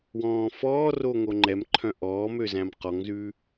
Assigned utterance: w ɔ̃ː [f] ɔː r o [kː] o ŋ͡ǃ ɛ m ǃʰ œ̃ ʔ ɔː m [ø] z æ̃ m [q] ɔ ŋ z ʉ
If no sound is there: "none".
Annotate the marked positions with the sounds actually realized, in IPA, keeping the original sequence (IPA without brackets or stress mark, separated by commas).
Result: f, ŋ, ø, q